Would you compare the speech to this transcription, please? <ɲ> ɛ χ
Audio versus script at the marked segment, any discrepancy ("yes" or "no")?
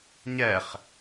no